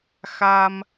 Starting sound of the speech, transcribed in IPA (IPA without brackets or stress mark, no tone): x